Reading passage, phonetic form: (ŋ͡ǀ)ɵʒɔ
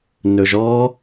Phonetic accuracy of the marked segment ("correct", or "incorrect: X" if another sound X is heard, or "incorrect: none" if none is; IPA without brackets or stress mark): incorrect: n